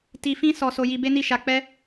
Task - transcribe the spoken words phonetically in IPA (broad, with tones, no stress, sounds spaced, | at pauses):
t i˧ f ĩ˦ s ɔ˦ s o˦ j i˧ b e˦ n i˦˨ ʃ a˧ k͡p ɛ˦